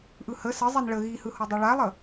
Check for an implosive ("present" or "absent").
absent